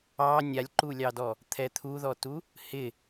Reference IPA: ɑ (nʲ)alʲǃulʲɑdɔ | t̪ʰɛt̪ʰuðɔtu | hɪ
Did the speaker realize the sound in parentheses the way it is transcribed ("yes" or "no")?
yes